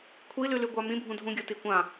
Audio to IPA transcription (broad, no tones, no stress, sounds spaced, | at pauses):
kʷʰ i l ʉ l ʉ ɡʷ a m ĩ bʱ ũ dʱ ũ ɡʲ o t i kʷ ã